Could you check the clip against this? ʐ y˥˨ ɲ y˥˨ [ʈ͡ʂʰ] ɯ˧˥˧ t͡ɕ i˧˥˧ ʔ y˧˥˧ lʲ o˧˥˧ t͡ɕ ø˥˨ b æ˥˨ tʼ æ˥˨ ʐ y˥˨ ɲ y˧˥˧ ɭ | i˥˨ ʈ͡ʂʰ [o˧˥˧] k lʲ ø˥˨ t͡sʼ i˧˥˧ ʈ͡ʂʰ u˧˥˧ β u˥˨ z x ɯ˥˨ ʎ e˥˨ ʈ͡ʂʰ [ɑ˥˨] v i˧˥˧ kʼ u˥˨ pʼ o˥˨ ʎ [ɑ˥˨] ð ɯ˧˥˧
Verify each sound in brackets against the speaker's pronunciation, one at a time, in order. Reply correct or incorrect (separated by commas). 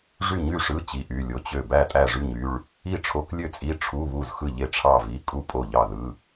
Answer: incorrect, correct, correct, correct